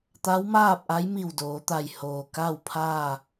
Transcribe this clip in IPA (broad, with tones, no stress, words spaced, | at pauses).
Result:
t̪a˧˥wmaː˥˨p̚ʔa˧˥jmi˧˩w doː˩˧t̪a˧˩jhoː˩ ka˥˨wpʰaː˥˨